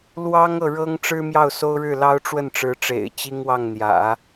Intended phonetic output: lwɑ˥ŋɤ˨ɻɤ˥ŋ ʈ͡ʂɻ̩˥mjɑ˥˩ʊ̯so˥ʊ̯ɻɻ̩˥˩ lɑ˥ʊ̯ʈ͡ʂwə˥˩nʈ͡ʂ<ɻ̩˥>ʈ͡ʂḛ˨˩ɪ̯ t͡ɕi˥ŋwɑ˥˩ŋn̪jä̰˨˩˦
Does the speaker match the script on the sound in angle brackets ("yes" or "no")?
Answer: no